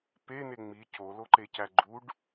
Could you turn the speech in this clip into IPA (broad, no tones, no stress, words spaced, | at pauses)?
pene ŋ͡mi coloǃecæ ɡ͡ǃuɖ